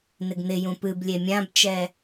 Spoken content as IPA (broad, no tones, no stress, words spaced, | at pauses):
nɪɡnɪjũ pɨblʲe mʲãbt͡ʃɛ